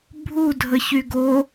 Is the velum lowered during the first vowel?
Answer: no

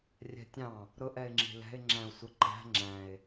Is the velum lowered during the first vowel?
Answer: no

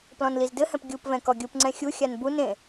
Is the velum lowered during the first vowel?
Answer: yes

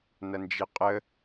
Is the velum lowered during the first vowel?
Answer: no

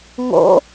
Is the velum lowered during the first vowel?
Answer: no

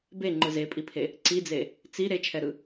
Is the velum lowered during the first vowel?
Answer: no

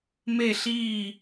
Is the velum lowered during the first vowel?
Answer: no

